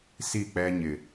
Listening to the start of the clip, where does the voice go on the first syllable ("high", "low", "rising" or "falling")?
falling